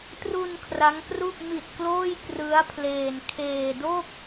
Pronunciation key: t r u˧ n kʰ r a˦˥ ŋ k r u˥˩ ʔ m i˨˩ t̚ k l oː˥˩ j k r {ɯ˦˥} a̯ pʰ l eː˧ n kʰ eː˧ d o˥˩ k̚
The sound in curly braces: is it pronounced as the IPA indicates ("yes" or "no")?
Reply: yes